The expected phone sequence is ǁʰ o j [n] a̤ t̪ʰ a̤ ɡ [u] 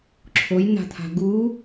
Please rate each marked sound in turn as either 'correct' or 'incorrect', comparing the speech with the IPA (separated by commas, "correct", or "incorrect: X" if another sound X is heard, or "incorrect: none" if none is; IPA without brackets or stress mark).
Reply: correct, correct